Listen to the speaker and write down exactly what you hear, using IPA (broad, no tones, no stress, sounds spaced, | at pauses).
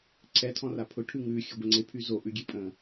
ǀʰ ɛ tʰ ɔ̃ r a pʰ ʊ ʈʰ ʉ ŋ ʉ xʲ ə ɡʷ ə ŋ͡ǀ e pʰ y z o ʔ ʉ ɡʲ e pʼ ə̃